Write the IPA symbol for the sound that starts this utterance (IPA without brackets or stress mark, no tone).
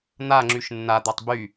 n̪